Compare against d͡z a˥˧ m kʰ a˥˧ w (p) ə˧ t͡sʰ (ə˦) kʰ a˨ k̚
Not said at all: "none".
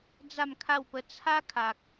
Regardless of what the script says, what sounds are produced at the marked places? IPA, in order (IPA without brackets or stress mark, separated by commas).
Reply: p, a˦